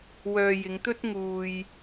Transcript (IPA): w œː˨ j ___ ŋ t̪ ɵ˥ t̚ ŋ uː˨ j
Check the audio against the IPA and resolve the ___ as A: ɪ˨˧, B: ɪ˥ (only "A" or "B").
A